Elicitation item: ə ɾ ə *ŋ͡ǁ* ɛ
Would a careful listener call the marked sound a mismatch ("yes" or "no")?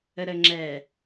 no